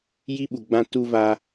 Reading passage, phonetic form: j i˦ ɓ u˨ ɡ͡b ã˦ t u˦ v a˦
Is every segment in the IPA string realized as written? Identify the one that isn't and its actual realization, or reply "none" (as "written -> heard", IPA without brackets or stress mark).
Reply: none